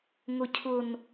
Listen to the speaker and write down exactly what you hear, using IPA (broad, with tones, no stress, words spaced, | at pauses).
ŋʊ˨cʰʊ˨n